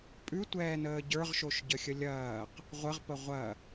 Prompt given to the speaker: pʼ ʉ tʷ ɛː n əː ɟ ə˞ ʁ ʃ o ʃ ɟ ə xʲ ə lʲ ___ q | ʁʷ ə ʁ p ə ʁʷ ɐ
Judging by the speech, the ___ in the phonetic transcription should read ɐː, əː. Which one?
ɐː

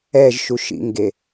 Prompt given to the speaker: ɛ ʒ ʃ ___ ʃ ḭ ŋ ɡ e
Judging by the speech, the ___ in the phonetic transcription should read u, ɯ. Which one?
u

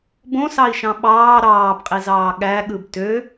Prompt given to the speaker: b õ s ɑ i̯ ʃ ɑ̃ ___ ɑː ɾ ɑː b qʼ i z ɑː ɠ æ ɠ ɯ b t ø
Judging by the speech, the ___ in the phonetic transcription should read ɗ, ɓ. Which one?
ɓ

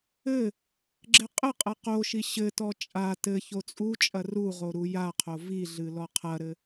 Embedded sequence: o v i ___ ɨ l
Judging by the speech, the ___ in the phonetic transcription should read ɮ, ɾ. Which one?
ɮ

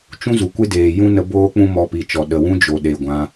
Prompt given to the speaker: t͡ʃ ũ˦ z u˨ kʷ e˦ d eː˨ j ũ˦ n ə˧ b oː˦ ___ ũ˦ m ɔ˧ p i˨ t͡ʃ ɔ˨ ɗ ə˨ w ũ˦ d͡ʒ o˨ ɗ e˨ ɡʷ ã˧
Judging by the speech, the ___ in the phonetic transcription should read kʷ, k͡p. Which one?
k͡p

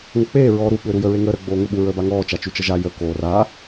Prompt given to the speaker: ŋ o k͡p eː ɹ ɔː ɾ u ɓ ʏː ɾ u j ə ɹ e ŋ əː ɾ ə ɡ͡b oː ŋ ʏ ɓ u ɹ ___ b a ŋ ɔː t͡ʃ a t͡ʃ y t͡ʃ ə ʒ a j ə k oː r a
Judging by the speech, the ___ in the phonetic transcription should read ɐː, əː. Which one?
əː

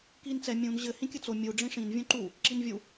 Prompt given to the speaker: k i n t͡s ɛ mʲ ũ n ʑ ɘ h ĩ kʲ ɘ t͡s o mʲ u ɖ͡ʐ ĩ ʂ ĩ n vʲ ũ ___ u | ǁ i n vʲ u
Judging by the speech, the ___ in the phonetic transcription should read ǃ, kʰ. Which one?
ǃ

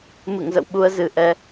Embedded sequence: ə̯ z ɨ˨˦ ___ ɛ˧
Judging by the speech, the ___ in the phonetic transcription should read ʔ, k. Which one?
ʔ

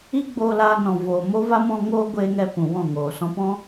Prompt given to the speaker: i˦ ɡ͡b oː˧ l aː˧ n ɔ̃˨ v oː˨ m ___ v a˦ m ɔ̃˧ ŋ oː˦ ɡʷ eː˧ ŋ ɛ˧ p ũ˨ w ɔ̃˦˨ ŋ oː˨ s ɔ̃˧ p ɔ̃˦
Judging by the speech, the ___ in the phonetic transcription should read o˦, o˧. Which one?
o˦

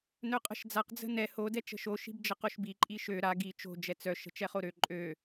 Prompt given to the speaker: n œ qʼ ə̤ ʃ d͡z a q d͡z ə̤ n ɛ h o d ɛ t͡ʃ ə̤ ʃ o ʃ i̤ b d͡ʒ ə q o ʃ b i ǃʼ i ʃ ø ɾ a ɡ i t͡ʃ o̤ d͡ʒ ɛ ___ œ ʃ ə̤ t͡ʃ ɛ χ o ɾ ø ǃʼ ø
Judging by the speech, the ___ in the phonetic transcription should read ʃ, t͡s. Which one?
t͡s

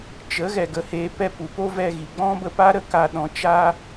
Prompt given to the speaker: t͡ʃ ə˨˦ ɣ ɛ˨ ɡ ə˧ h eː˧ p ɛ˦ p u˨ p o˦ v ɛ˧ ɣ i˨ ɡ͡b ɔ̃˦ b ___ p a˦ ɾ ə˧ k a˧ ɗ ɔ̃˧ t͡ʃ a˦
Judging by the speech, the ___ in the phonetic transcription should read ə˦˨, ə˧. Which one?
ə˧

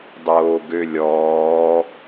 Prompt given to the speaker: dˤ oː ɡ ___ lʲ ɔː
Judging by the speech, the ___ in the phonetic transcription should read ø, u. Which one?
ø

